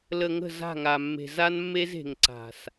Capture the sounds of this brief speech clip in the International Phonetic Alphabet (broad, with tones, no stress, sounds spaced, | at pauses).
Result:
l ə˨ ŋ ə̤˦˨ z a̤˦˨ ŋ a˨ mː e̤˨ z a˦ n mː e˦ z e̤˨ ŋ ǀ a̤˨ s